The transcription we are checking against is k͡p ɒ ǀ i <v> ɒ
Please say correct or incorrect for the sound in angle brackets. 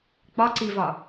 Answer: correct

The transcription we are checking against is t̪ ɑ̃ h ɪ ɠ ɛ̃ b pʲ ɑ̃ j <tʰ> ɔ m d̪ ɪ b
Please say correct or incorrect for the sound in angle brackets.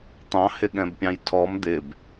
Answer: correct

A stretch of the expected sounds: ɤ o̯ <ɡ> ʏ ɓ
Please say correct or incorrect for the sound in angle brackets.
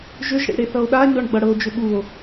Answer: incorrect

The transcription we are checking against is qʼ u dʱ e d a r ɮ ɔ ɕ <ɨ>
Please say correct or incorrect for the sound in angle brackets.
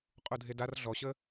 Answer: incorrect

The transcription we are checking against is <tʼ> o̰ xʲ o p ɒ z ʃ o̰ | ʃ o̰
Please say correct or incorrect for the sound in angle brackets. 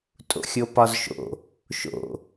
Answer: correct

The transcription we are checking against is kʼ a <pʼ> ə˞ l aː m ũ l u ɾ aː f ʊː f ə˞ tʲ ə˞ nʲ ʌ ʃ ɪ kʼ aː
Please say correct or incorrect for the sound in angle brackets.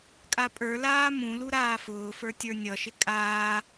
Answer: correct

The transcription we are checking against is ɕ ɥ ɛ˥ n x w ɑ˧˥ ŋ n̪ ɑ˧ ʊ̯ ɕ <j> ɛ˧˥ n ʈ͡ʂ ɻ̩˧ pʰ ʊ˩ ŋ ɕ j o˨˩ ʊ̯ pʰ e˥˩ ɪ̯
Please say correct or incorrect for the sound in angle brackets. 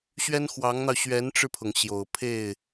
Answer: incorrect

